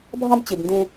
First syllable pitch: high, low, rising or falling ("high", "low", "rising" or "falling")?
high